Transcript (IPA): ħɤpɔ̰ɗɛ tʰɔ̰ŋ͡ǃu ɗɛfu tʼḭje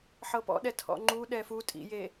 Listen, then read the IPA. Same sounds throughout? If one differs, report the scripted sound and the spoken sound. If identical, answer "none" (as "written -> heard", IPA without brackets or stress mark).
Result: none